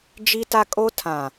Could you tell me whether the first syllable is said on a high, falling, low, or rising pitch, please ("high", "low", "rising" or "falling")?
high